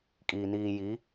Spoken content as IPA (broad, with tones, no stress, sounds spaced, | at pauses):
kʼ iː˨ n iː˨ j i˨˦